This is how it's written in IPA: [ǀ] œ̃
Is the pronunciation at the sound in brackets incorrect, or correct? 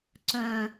correct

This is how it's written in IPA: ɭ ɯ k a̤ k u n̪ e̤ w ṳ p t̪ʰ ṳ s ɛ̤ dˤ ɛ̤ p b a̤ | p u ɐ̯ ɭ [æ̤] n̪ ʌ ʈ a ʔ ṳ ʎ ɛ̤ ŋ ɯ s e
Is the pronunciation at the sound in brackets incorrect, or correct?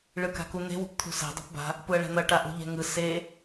incorrect: ɛ̤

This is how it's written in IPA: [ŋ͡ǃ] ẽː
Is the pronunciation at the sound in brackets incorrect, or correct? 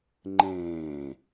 correct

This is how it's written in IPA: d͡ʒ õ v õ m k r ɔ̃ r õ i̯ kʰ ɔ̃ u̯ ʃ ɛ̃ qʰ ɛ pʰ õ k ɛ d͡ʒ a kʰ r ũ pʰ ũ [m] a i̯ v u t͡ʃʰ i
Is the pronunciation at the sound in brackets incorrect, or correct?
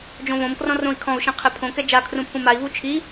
correct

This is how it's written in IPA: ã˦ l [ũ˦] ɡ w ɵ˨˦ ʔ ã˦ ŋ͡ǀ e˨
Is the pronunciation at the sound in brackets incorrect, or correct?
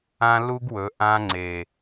incorrect: u˦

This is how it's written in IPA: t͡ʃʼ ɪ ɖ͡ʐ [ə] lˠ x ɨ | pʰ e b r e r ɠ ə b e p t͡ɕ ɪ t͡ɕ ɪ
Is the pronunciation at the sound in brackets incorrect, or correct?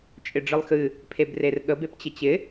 incorrect: ɨ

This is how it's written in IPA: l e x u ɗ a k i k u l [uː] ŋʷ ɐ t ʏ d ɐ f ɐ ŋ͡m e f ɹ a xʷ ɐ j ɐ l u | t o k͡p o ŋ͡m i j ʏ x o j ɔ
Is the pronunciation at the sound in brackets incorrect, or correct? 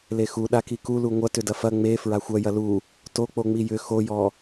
incorrect: u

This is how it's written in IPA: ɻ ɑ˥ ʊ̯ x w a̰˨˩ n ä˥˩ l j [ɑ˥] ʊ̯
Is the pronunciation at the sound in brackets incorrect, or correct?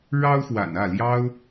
correct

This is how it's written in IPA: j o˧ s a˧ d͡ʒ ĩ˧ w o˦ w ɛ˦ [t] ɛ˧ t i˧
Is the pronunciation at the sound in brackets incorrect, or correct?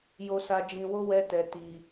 correct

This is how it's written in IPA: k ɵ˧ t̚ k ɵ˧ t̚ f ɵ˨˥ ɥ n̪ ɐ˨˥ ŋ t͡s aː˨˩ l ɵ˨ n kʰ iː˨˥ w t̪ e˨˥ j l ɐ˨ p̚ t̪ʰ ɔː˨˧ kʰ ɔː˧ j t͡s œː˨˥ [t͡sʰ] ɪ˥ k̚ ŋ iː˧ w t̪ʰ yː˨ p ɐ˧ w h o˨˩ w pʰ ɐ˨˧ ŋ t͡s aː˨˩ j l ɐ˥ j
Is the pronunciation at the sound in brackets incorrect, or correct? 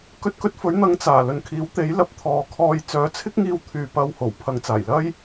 correct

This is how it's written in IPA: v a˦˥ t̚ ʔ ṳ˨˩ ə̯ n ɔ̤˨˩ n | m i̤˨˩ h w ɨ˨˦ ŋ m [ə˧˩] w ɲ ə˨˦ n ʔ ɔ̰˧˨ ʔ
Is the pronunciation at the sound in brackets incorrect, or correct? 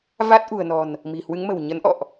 incorrect: ə̤˨˩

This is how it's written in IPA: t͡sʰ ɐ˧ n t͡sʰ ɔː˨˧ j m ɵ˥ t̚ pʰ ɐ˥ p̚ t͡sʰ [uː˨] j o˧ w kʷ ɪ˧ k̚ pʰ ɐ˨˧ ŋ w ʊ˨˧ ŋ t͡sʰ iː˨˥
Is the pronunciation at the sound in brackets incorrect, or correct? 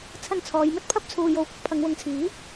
incorrect: uː˧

